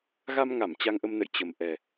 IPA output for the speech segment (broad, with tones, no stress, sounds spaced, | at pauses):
ɣ a˧ m ŋ a˧˩ m t͡ɕ a˧ ŋ ʔ ə˧ m n ə̰˧˨ j t͡ɕ ə˨˩ m ʔ ɛ˨˩